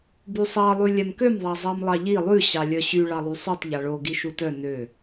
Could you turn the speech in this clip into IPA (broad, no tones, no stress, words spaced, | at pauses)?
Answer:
bysˤɑ lˠʉlʲɛmkøm ðˤɑzˤɑmlˠɑʎi lˠʉ ɕɑlʲœɕy ɭɑlˠysˤytˤ ʎɑɭo ɡiʃutœ nø